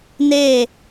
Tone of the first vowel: falling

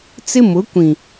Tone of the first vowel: high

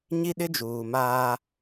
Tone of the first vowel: high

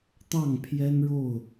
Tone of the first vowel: falling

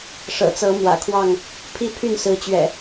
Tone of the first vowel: low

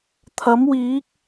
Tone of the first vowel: rising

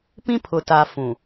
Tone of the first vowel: high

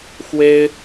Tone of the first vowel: high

